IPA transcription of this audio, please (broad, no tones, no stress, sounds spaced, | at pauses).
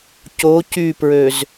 c o c y p ɹ ø z